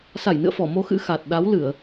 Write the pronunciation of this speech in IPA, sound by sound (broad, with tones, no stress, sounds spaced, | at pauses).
s a˧˩ j n ɨ̰˧˨ ə̯ f ɔ˧˩ m o˧ x ɨ̰˧˥ x a˨˩ t̚ ɗ a˨˦ w l ɨ˧˩˨ ə̯